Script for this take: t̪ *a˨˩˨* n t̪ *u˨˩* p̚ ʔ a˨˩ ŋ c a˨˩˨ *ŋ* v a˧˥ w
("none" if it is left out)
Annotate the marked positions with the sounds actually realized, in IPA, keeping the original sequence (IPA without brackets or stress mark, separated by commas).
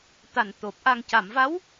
a˨˩, o˨˩, m